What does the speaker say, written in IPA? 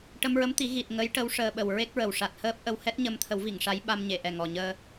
ʈə˧mɹə˧˥mt̪i˨˩˦ ɣi˨˩t̚ ŋə˧˥jʈə˧˥w ʂəː˧ɓə˨˩w ɹe˦˥k̚ɹə˨˩w ʂa˨˩t̚həː˦˥p̚ʔə˧w hɛ˦˥t̚ɲə˧mt̪ʰə˨˩˦wvi˨˩˨ŋ ʂa˧˥jɓa˧mɲe˨˩˨ʔɛ˨˩ ŋɔ˨˩ɲəː˧

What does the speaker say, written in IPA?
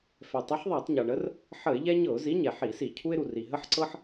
fɛ˩tˤə˨˥ħðˤa˧˩˧tˤ ɲɤ˩ɳə˨˥r | ħə˧˩˧ɪ̯ ʎɛ˦ɲɤ˧˩˧ʊ̯zi˨˥ ɲɛ˩ħi˧˩˧si˧˩˧ cʰu˦ɪ̯ɾu˩ ri˩ɦə˦ħǀɤ˦ħ

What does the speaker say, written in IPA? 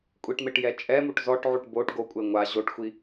kʷʼiʈmeʈ jɛt͡ʃʼɛmuʈ zɔʈʕuʈ boʈ ɡokʷʼe ŋʷa ʑoʈxʷi

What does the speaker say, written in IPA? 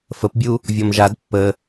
fəpbʲu | vʲɔmʒad pːə

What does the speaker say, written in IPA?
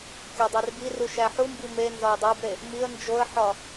kʲɒdˤerbiru ʃæħumbi me nzɒjdˤæbɾe | miə̯ nd͡ʒoə̯ħɒ

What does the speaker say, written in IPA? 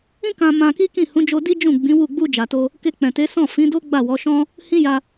ĩ˦kã˧ mã˧ki˦ kĩ˦˨hũ˨˦d͡ʒo˧ di˦d͡ʒũ˦˨ɡ͡bĩ˨˦ wu˦˨ ɡ͡bu˧ d͡ʒa˨to˧ | ke˧k͡pɛ̃˨te˨˦sɔ̃˦˨ fĩ˨˦do˦ ɡ͡ba˦˨wɔ˨˦ʃɔ̃˦ | hĩ˦ja˧

